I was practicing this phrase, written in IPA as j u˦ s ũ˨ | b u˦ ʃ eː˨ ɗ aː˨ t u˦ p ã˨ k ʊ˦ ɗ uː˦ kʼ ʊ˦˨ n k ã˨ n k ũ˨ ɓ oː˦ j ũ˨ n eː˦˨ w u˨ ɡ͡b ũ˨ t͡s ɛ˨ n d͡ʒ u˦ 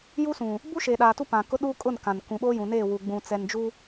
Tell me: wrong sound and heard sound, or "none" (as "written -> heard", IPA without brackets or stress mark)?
none